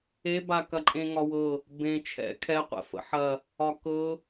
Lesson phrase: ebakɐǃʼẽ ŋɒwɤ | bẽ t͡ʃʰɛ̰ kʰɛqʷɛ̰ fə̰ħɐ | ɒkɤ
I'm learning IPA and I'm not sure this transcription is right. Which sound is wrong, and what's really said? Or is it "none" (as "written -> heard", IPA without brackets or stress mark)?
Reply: none